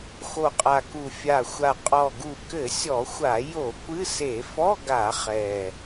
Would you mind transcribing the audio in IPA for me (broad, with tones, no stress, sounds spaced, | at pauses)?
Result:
x o˨˩ qʼ a˨˩ k u˨˩ fʲ a˨˩ xʷ a˨˩ qʼ ɔ˨˩ ɡ u˨˩ k ɘ˧˩˧ sʲ ɔ˧˩˧ xʷ a˧˩˧ j o˧˩˧ kʷ ɨ˧˥˧ s e˧˩˧ f ɔ˧˥˧ ɡ a˧˩˧ χ ɛ˨˩